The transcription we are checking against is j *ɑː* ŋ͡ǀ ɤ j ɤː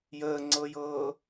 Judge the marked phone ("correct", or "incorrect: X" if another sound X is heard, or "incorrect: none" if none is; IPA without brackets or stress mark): incorrect: əː